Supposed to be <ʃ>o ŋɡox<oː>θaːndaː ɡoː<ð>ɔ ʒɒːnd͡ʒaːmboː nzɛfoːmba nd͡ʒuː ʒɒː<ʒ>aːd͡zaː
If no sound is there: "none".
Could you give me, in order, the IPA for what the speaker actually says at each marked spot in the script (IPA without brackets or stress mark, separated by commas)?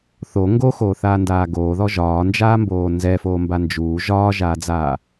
θ, oː, ð, ʒ